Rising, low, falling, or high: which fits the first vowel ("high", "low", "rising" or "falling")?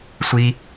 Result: high